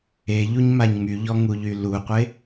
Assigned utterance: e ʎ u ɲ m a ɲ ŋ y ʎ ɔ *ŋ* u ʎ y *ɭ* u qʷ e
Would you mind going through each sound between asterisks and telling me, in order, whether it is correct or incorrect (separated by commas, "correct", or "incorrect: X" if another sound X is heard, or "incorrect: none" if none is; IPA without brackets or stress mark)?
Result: correct, incorrect: l